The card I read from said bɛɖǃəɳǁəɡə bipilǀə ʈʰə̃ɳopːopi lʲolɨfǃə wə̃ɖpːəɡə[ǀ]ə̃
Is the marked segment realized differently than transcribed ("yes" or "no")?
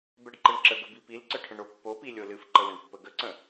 no